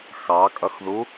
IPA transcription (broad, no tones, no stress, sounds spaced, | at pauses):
x ɑ kʼ ʌ x ð u